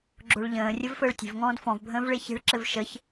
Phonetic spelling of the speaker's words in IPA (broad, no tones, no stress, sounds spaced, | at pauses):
ɡ͡ǁ o ɭ ʎ ə̃ː rʲ ə v f əː ɭ tʲ e̤ v ŋ ɔ̃ː d f ɔ̃ v bʱ ə̃ː v ɭ e ç e̤ ɭ ǁ ɘ v ʃ ə ç